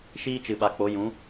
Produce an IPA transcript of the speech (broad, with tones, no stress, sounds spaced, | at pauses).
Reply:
ʃ iː˦ t͡ʃ ɨ˨ ɓ a˨ k͡p o˨˦ j ũ˨˦